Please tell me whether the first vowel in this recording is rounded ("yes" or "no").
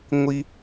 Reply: no